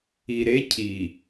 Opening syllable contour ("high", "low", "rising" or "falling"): low